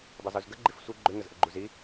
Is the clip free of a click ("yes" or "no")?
no